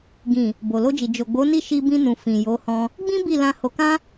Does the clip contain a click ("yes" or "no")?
no